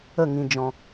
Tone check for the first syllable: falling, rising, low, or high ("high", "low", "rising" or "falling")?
falling